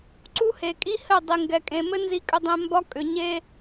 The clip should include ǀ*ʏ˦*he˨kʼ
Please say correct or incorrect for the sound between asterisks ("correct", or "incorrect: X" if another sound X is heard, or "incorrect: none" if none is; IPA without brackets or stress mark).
incorrect: u˦